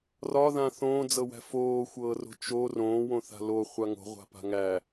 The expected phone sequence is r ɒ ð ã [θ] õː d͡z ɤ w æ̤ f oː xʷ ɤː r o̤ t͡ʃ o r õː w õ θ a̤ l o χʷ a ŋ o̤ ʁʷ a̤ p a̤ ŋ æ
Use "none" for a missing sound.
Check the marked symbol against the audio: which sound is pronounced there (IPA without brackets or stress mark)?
θ